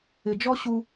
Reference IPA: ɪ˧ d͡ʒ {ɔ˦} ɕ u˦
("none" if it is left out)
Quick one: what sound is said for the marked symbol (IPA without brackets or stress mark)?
ɔ˦